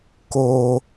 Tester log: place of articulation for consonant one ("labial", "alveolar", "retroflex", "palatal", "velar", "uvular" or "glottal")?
velar